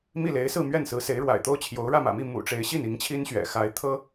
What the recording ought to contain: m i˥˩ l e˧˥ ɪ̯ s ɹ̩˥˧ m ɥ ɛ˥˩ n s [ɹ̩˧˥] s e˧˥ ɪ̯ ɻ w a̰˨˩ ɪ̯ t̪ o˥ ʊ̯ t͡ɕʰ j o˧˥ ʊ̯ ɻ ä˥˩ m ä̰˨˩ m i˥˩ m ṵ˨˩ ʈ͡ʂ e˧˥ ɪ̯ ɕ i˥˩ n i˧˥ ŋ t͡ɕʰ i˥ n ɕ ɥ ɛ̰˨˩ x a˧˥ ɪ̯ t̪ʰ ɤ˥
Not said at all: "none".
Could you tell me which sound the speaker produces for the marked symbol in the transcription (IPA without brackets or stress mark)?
ɹ̩˧˥